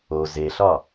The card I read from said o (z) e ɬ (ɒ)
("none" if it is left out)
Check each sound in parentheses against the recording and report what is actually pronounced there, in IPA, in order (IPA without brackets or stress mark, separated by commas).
z, ɒ